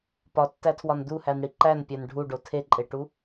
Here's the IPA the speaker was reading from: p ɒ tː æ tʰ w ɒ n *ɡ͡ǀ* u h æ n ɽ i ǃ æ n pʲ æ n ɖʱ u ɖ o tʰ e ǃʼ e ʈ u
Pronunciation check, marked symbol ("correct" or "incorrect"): incorrect